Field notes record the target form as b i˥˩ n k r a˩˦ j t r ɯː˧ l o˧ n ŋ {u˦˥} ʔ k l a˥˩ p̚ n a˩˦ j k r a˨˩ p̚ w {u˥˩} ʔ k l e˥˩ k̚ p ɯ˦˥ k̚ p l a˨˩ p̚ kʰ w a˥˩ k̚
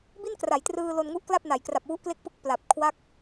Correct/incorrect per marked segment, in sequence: correct, incorrect: u˦˥

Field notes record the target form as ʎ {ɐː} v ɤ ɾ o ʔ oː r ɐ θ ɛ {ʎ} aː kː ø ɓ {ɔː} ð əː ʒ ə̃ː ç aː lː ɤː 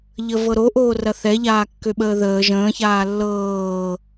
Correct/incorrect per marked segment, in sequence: incorrect: əː, correct, incorrect: əː

